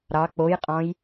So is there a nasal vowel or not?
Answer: yes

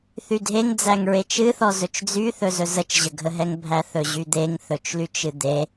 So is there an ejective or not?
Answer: no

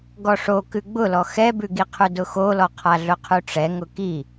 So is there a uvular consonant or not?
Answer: yes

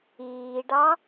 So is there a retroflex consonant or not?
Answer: yes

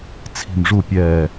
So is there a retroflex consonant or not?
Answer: yes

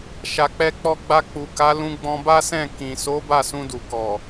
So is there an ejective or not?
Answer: no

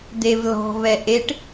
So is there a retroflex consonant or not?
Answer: yes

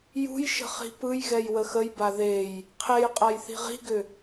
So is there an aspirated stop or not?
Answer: yes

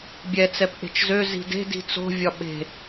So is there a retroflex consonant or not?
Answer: no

